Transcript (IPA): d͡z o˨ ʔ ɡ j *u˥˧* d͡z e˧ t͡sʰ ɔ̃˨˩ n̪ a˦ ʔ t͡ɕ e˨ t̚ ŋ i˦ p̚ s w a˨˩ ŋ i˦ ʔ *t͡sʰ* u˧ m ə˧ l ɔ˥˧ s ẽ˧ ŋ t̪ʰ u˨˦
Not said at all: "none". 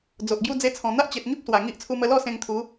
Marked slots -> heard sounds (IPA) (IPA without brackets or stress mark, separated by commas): u˥˧, t͡sʰ